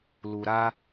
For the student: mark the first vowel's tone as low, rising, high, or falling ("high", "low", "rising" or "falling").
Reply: low